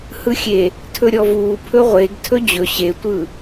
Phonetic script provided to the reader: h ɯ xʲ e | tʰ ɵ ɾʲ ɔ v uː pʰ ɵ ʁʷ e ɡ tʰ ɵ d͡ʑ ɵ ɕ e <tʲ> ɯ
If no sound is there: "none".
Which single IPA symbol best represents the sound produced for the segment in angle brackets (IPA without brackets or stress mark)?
tʷ